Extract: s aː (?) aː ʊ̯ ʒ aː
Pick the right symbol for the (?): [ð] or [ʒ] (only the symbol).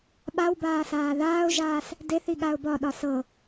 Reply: ð